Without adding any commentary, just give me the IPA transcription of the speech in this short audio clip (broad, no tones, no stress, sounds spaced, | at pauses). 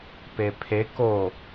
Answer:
p e pʰ e k o